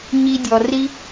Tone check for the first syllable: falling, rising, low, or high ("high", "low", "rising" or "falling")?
high